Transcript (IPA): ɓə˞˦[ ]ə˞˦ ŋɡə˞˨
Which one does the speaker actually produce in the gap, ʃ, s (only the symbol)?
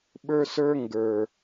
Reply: s